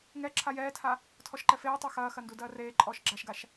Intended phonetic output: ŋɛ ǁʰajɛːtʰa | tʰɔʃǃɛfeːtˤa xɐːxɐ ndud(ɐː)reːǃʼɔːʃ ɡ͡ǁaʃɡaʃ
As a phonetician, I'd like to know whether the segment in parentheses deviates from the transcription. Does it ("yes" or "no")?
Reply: no